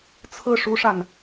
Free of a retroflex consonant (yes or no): no